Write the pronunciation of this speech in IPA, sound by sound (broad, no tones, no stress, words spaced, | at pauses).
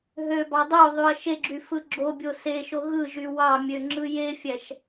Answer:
ɦøbɑ dˤoðˤyɐ̯ ʃeɡ͡ǁy fɯɡ͡ǁobʲo seʃo ɣɯʒy wɑmʲø ŋ͡ǁɯjefʲæʃ